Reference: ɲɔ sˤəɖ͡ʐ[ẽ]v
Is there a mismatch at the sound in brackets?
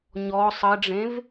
no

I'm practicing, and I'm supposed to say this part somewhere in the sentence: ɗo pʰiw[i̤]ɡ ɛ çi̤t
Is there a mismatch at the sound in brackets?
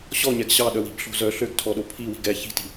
no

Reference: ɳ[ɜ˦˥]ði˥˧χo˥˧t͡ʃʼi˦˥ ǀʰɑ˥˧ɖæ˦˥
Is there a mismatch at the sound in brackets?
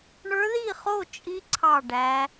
yes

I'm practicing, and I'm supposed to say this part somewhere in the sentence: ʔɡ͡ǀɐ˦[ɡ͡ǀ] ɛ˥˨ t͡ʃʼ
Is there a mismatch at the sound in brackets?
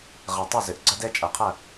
yes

